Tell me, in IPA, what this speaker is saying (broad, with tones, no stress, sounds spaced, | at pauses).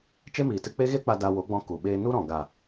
t͡ʃ e˦ m iː˨ t ɨ˧ k͡p e˦ ɣ e˦ k͡p a˧ d a˧ w o˨˦ ɡ͡b ɔ̃˧ k u˨ ɓ eː˧ n u˦ ɾ ɔ̃˨ ɡ a˨